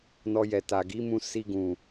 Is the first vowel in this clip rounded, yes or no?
yes